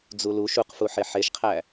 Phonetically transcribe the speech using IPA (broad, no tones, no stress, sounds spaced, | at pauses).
d͡z u l u ʃ u q f u ħ e ħ e ʃ qʰ æ